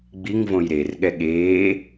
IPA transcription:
ɡ͡b i ŋ v õ j ɾ e r ɠ ɛ ɠ eː

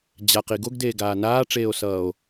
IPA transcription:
d͡ʑ a q i ɡ o ɡ d eː ɡ aː n aː ʈ͡ʂ eː o̯ s ʌː o̯

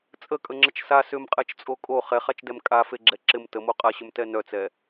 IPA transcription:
t͡sʼ ə kʼ ə ŋ͡ǁ ə t͡ʃ s a s ʏ m qʼ ɛ t͡ʃ t͡sʼ o kʼ o χ ɛ χ a t͡ʃ d ɛ m kʼ a f e ɡ͡ǁ ɛ ǁ ɪ m t ə m o qʼ a ɕ ʏ m t ɛ n œ t͡s ɛ

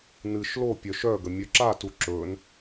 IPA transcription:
n ɨ ʃ l o pʲ œ ʃ œ ɡ ə mʲ œ ǁ a t u ǁ ɵ n

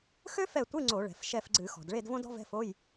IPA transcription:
x ø˥ f ɛ˦˨ tʷ ɨ˧˥˧ ŋ͡ǀ o˧˩˧ ɭ ɛ̤˩ f ʃ ɛ˦˨ f ɡ͡ǀ ɨ˧˩˧ x ɔ̤˩ d ɭ e˦˨ d v õ˥ d ɔ̤˥ v ɛ̤˧˥˧ f o˧˥˧ j

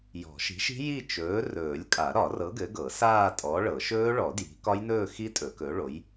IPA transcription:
j ɔ̤˨˩˦ ʃ i̤˨˥ ʃ i̤˦˥ j i˥˧ t͡ʃ ɵː˨˥ r ɵː˨˩˦ lʲ kʼ a˨˩˦ ɾ ɒ˨˩˦ r ɤ˨˥ ɡ ɘ˨˥ ɡ ɤ˨˩˦ s aː˥˧ tʼ ɔ˨˥ ɭ ɤ˨˩˦ ʃ ɵː˦˥ ɭ ɔ˨˩˦ d j i̤˨˥ k ɒ˦˥ j n ɵː˥˧ x i˦˥ tʼ ɵ˨˩˦ k ɵ˨˥ ɭ o˨˥ j

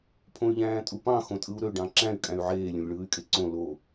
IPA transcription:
pʰ õ y̯ ʎ æ̃ː tʼ u p ɑ̃ x õ tʼ ɯ u̯ ɾ ø ɖ ɑ̃ ǁ æ̃ y̯ kʼ æ̃ y̯ ʕ eː lʲ õ lʲ ɭ ɯː y̯ kʼ e ǀ õ l o

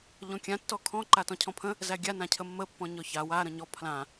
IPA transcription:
ʎ ɔ̃ kʲ ã tː ɔ kʰ ɔ̃ ǃ a t ɔ̃ cʰ ɔ̃ pʰ ə̃ | z æ ɡʲ a n ã cʰ ə mː ə pː ɔ̃ ɲ ɔ ç a w a ɾ ə̃ ɲ ɔ pʰ l ã

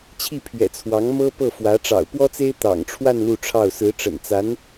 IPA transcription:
t͡ɕʰ i˥˩ pʰ ɥ ɛ̰˨˩ t͡sʰ w ɑ˧˥ ŋ m ɤ˥ p ɤ˥˩ f w ä˧˥ ʈ͡ʂ ɑ̰˨˩ ʊ̯ p w ɔ˥ t͡s e˥ ɪ̯ t̪ ɑ̰˨˩ ŋ ʈ͡ʂʰ w a˥˧ n l u˥˧ ʈ͡ʂʰ ɑ˥˩ ʊ̯ s ɹ̩˧˥ ʈ͡ʂ ə̰˨˩ n t͡s a˧˥ n

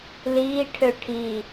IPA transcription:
l iː ʈʰ ø ʈʰ i

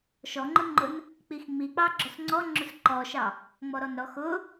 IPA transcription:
ʃ ɔ ŋ͡ǃ ʊ ŋ͡ǃ ʊ n | k͡p i x ŋ͡m i k͡p ɑ ɡ͡ǁ ɔ s ŋ͡ǀ ɔ ŋ͡ǁ ʊ s ǃ ɔ ʃ ɑ | ŋ͡m ɔ ɾ ɔ n ɾ ɔ x ʊ

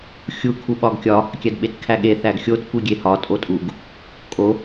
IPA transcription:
xʲ u kʰ u ɓ ɒ ɡ kʲ ɒ | kʲ æ d ɓ e t kʰ æ ɠ e θ æ ɡ xʲ o t kʷ i ɡʲ e h ɒ tʼ o tʼ u ɡ | kʼ o

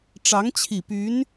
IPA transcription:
ʈ͡ʂ ɑ˧˥ ŋ t͡ɕʰ i˨˩ p y˧˥ n

